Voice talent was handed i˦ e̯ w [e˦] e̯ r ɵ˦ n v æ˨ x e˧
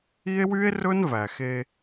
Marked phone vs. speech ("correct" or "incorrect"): incorrect